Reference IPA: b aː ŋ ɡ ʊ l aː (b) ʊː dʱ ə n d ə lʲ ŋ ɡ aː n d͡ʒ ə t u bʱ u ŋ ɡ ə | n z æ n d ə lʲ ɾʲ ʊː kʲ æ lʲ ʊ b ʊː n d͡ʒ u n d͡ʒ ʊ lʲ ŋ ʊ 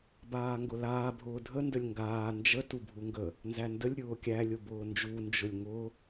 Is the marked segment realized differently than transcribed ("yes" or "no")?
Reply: yes